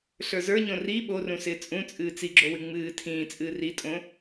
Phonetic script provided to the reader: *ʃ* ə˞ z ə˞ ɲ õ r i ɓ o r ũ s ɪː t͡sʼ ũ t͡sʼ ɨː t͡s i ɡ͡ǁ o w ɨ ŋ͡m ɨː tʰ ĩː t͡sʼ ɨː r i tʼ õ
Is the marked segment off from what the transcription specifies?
yes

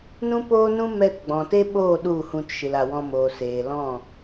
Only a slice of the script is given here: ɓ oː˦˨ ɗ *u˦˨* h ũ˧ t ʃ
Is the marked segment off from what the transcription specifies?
no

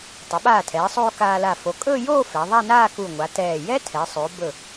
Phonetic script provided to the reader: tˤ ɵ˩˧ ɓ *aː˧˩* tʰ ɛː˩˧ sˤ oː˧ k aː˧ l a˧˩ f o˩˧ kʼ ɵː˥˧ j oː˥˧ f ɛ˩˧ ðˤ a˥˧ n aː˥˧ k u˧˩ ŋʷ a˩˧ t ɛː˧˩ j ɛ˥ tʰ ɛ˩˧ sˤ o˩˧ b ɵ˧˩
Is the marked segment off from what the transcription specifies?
no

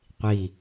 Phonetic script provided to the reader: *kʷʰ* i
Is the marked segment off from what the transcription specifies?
yes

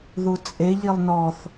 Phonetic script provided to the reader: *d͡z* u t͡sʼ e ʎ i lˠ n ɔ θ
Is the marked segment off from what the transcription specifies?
yes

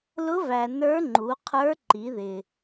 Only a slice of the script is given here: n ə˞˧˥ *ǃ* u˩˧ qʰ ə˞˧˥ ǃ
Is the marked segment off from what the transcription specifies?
yes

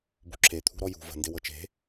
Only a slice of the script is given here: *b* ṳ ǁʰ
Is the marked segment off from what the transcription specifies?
no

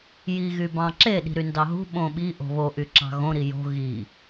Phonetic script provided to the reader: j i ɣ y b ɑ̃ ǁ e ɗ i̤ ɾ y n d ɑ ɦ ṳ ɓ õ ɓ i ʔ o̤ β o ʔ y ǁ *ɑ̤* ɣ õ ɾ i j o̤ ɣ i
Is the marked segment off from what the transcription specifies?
no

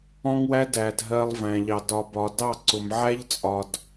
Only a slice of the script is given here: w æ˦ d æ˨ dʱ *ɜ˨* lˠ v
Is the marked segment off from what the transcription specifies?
no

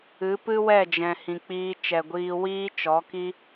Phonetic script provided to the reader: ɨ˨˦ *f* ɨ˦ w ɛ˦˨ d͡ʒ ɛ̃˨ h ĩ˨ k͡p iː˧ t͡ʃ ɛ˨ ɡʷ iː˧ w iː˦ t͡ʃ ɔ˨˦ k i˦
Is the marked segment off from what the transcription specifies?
yes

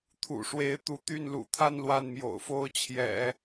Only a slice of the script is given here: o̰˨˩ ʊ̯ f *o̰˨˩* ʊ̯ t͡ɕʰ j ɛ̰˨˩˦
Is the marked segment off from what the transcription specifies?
yes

